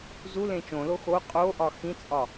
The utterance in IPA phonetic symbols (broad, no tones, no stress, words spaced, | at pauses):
zulẽ t͡ʃõlo xo qʼoʔɒ xĩt͡sʼɒ